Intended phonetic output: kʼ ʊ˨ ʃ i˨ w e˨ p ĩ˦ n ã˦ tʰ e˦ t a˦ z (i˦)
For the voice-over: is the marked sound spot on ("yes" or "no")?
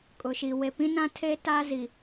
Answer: no